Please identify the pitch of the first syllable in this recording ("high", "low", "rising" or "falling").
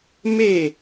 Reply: falling